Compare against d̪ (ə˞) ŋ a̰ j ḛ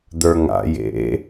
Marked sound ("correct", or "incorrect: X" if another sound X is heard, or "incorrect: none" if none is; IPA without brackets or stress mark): correct